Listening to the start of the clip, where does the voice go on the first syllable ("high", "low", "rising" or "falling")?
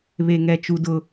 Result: high